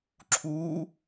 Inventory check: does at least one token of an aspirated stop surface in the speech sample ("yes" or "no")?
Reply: yes